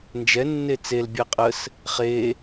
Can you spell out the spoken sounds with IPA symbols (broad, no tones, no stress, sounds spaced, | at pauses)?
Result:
n d͡ʒ ɛ nː e t͡s e l bʲ ɛ qʼ ə s | χ e